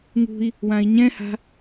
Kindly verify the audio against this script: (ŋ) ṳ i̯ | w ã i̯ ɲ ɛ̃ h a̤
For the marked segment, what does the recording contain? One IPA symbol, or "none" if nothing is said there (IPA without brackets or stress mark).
ŋ